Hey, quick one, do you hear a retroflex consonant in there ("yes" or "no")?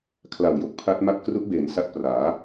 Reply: no